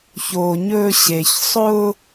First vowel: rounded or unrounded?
rounded